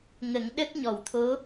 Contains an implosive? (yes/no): yes